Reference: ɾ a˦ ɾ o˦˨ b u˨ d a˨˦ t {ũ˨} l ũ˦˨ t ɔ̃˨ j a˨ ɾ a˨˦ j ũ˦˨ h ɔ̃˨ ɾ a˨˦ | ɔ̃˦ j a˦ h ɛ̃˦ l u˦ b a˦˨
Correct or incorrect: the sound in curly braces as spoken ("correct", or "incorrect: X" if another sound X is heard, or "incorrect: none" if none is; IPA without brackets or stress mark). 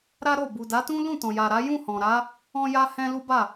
incorrect: ũ˦